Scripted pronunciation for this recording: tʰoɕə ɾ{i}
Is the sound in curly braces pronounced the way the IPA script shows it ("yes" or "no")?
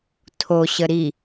yes